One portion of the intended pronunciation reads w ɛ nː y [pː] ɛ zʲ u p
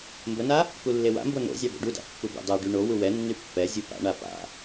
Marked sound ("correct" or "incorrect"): correct